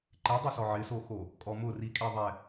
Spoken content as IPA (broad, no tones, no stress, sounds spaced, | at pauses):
ǃ e dˤ u s ɔ ʕ ɪ s o x o | kʼ ɔ m ʊ r i kʼ e ðˤ ɛ